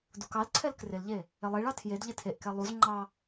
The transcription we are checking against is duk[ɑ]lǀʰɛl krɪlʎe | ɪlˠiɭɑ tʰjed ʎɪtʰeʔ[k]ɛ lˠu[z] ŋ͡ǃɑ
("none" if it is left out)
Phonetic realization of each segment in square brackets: ɑ, k, z

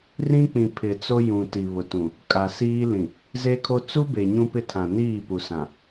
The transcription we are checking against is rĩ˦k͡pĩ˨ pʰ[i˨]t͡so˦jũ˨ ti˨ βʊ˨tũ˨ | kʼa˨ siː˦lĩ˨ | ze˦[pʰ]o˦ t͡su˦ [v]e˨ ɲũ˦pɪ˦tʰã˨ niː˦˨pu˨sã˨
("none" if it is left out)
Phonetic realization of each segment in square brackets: ɪ˨, kʰ, b

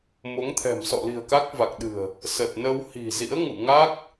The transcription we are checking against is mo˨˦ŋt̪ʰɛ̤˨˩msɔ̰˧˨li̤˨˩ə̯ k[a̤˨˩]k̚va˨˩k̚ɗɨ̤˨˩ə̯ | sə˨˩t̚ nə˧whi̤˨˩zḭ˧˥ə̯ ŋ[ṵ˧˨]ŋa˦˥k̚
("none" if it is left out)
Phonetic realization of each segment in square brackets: a˦˥, ṵ˧˨

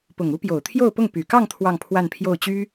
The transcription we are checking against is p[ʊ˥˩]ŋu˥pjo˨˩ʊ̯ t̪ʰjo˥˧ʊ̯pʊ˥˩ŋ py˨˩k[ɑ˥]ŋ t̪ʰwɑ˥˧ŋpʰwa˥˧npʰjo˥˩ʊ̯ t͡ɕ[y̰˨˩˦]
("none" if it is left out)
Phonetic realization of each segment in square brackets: ʊ˨˩, ɑ˥˧, y˥

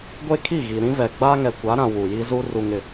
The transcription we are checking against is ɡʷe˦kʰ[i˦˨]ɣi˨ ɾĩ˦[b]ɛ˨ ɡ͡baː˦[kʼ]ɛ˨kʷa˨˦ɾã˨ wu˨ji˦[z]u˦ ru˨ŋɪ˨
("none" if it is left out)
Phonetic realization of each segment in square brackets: i˦˨, v, ŋ, z

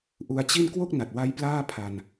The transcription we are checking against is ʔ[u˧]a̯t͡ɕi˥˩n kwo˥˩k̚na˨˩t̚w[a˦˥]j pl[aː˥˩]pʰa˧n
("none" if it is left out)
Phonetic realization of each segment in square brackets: u˧, a˦˥, aː˥˩

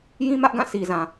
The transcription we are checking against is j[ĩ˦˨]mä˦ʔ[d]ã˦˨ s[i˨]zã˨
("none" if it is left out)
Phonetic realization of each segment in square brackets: ĩ˦, ɡ, i˨

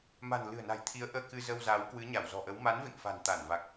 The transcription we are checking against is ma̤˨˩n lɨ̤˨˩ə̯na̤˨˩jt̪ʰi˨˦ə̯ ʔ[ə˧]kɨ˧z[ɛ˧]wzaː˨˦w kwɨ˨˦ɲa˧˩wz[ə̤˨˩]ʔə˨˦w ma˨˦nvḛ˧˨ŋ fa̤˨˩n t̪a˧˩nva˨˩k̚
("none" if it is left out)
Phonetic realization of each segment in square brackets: əː˧, ə˧, ɔ̤˨˩

